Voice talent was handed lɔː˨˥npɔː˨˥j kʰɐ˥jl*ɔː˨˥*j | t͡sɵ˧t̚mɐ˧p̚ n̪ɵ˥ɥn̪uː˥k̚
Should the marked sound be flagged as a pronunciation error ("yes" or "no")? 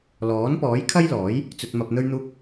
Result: no